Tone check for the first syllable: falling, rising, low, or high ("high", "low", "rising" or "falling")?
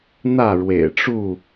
falling